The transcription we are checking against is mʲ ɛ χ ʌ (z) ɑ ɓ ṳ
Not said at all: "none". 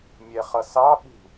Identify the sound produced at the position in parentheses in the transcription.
s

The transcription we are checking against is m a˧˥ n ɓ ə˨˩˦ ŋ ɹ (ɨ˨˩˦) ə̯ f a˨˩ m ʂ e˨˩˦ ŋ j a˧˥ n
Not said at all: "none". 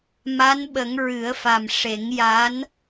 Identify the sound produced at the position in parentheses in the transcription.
ɨ˨˩˦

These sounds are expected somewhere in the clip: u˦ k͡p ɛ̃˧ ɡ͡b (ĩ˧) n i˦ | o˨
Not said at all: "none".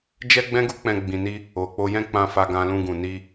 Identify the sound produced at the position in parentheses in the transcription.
ĩ˧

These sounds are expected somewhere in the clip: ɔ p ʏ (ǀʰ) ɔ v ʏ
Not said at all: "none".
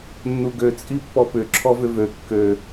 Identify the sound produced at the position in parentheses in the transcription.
ǁʰ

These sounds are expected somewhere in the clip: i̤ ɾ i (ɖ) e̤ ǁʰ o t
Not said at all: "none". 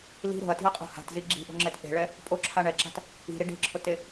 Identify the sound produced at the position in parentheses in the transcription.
ɖ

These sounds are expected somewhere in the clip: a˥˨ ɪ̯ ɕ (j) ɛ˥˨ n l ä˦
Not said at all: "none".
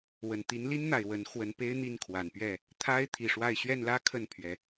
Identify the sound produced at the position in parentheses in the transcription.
ɥ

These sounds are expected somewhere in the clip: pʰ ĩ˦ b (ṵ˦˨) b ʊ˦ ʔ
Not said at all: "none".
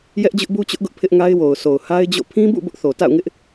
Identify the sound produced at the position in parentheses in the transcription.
ṵ˦˨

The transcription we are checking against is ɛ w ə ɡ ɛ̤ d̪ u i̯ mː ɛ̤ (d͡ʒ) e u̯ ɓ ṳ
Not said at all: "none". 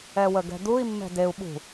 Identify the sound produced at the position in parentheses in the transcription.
d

